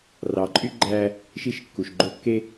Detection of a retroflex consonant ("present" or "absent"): absent